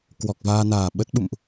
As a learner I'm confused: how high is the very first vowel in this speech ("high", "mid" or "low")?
mid